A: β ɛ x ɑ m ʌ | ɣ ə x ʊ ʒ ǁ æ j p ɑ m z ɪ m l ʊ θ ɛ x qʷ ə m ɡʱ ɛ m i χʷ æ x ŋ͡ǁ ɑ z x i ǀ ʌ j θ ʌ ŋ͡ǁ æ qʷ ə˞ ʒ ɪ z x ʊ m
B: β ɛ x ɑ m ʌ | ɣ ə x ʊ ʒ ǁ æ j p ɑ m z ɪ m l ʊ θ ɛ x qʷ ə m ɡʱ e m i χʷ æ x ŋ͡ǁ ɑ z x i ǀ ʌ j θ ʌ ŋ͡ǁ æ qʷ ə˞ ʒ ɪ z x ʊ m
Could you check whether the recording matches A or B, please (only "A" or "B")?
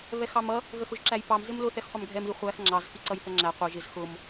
A